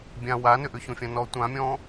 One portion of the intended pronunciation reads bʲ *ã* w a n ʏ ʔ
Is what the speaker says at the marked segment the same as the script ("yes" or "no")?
yes